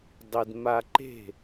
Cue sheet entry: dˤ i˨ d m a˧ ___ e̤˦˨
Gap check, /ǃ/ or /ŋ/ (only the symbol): ǃ